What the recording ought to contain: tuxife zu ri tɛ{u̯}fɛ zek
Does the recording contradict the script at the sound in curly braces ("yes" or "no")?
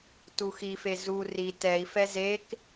yes